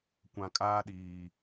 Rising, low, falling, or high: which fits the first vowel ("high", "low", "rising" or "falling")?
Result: low